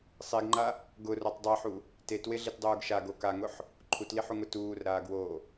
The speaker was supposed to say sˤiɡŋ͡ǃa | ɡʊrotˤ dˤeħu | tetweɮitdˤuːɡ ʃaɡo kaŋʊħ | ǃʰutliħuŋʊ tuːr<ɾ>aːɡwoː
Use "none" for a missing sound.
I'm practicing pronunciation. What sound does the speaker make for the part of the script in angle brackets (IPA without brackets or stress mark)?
ɾ